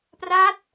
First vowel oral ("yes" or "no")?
yes